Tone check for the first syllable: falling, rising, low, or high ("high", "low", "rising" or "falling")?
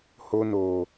high